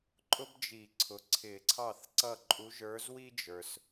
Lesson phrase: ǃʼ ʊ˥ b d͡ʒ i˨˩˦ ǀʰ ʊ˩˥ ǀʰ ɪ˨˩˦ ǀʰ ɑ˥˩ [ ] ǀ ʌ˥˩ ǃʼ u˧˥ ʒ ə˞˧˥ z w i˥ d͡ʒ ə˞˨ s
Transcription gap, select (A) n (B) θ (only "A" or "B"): B